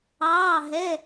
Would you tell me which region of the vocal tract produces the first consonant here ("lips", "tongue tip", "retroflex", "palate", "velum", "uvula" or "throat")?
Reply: throat